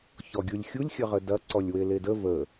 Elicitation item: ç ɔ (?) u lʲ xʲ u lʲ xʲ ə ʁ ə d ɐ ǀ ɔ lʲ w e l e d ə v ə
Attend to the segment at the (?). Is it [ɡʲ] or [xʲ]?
ɡʲ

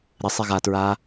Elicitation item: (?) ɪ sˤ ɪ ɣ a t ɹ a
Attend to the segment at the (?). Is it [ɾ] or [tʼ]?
ɾ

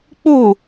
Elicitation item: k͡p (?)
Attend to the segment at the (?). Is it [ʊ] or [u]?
u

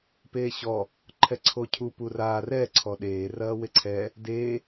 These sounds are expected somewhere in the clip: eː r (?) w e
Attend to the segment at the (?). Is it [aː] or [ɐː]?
ɐː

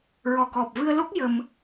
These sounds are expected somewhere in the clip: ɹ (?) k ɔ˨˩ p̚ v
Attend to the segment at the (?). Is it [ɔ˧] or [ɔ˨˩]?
ɔ˨˩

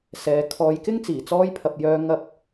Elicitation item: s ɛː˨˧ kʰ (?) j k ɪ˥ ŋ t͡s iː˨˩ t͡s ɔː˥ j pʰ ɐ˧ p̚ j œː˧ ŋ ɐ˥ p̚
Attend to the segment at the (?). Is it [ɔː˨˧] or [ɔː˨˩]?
ɔː˨˧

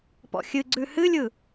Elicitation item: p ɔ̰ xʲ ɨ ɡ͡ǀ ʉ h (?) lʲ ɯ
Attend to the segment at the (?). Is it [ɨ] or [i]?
ɨ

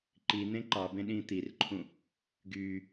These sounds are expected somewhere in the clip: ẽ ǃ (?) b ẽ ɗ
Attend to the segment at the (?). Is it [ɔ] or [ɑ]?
ɑ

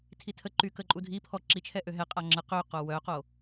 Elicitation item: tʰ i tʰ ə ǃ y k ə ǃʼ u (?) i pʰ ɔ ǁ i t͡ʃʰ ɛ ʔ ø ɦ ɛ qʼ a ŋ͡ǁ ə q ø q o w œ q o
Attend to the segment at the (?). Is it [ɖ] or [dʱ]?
dʱ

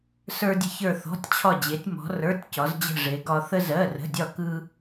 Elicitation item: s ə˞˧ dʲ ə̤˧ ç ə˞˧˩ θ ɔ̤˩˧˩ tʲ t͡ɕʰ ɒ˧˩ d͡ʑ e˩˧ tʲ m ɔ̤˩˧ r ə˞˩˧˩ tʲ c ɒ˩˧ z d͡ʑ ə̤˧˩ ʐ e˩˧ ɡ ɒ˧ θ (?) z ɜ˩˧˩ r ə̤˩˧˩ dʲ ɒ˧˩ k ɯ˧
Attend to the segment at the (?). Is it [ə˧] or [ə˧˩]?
ə˧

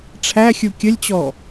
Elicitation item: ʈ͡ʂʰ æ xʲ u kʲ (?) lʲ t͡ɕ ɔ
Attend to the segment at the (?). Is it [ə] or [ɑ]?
ə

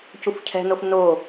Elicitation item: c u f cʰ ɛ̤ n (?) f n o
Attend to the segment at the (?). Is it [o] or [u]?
o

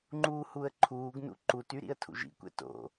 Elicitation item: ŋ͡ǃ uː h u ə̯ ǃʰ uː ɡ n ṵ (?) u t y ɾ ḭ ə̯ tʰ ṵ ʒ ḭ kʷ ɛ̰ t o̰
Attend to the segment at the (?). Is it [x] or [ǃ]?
ǃ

